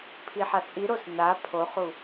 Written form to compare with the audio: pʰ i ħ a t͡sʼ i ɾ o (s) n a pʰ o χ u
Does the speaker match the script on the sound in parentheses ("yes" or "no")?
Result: yes